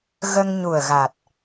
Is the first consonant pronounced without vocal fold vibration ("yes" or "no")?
no